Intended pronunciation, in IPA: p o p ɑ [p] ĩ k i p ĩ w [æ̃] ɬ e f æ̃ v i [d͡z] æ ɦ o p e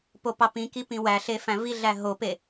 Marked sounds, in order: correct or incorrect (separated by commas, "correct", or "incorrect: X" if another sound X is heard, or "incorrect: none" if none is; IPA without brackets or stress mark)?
correct, incorrect: æ, incorrect: ɮ